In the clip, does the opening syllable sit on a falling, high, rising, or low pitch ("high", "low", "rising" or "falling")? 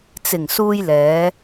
low